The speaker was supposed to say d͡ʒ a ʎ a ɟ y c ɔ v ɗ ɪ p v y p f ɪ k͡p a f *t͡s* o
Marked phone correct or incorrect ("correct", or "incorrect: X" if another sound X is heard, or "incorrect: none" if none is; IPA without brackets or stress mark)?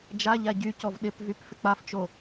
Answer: incorrect: t͡ʃ